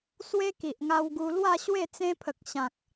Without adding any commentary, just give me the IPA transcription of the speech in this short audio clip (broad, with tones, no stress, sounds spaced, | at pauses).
s w e˦ k i˨ ʔ ŋ a˧ w ɡ u˧ l w a˥˧ ɕ w e˥˧ t͡s ẽ˦ pʰ ə˨ k̚ ɕ ã˨ k̚